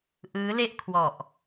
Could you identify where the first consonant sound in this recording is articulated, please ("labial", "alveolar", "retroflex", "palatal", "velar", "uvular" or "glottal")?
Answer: glottal